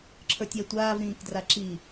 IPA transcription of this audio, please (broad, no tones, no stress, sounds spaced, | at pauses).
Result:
ǁʰ ə˞ tʲ ɛ tʷ aː v ɾ ĩː k d r a ǁ i